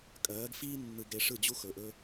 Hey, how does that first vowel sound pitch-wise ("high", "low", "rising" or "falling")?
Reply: rising